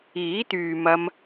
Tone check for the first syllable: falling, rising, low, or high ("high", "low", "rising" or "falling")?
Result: rising